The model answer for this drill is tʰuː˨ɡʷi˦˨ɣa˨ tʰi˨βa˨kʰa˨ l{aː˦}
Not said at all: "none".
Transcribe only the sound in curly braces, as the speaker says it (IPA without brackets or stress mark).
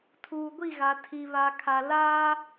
aː˦